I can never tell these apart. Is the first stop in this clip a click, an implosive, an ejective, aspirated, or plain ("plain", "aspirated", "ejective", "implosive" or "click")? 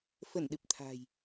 implosive